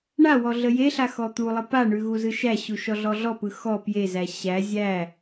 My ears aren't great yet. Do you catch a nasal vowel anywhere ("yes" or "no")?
no